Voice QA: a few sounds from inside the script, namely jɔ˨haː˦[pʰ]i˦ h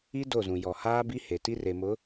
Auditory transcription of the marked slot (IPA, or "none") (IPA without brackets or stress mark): b